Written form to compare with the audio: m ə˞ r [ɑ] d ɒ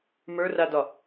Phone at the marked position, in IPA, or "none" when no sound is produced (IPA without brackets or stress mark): a